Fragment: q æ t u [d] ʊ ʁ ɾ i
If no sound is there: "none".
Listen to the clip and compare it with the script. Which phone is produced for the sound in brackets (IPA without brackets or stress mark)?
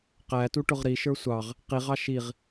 ʈ